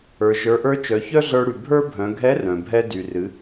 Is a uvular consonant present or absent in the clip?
absent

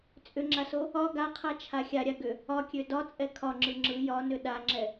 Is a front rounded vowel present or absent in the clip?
present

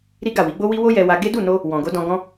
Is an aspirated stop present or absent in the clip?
absent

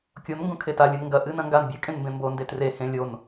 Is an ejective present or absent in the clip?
present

